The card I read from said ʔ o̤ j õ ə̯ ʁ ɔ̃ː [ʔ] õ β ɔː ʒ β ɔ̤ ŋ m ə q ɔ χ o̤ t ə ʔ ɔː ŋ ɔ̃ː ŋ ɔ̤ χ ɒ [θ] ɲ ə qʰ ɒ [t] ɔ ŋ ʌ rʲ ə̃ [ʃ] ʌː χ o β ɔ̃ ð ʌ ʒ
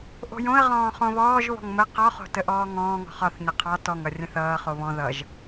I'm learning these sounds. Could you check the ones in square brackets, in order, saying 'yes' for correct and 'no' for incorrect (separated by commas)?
no, yes, yes, no